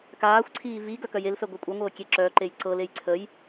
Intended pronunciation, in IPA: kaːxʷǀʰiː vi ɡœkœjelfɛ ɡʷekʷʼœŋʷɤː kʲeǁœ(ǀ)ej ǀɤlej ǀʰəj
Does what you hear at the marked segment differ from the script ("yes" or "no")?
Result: yes